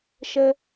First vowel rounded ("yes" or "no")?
no